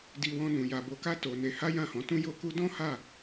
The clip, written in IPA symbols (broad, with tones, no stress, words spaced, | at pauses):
di˧wɔ̃˧nũ˨ ja˨ bo˧ka˦ to˧ne˧ ha˦jã˦˨hɔ̃˨˦tũ˦ jo˦ku˦ dɔ̃˦ha˦˨